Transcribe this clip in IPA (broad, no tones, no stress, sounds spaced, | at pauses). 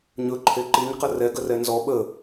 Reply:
ɲ ɵ ǃʰ e ǃ i ɲ q ə r ɛ ɡ ə r ɛ n z ɔ ɓ ə